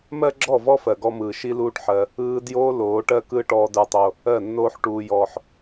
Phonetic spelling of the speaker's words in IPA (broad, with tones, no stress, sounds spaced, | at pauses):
m ɜ˦ ɡ͡ǁ ɔ˦˨ v ɔ˦ f ɜ˨ ɡ ɔ˦ m ɯː˨ ʃ i˦ l uː˦ ʈ ħ ɜ˧ | ɯː˧ d j o˧ l oː˨˦ ʈ ɜ˦ k ɯ˦ ʈ ɔː˦ d ə˞˦ tˤ o˦ | ɜ˦˨ nː oː˦ ħ ʈ uː˦ j ɔː˦ ħ